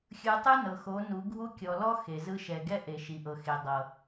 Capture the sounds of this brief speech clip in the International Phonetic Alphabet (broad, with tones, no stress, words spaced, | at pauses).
xʲɯ˨ tˤɯ˦nɤ˨xo˨˦ nu˨˦ɡʱu˦kʲɔ˨ lɔ˦ xe˨zɯ˦ ʃɛ˨ɡɛ˦ ʔe˨ʃi˨ʔɤ˨xe˨ dˤɤ˨